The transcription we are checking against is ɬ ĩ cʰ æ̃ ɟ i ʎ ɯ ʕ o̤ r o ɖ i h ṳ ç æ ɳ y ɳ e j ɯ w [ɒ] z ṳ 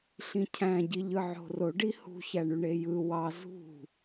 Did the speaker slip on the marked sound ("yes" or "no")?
yes